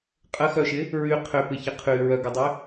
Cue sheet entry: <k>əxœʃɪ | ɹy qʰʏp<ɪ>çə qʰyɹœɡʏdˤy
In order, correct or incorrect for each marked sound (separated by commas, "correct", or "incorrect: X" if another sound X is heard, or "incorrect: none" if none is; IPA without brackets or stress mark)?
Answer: incorrect: qʼ, correct